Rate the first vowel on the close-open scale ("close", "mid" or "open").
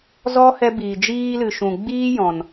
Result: mid